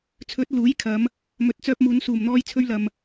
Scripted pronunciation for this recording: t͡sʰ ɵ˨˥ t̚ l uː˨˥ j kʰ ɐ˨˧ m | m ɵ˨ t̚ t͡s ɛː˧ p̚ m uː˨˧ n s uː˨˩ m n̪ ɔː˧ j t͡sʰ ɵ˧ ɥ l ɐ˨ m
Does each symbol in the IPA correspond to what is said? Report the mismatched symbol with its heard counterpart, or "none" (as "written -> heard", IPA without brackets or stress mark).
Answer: ɛː˧ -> œː˧